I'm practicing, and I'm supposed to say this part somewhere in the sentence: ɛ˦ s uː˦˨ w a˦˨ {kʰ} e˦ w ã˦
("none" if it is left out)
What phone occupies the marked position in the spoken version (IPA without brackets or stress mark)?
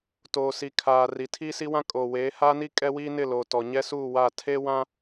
tʰ